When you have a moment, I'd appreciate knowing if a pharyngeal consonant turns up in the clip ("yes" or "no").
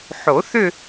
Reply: yes